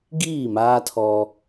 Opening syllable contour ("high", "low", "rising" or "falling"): falling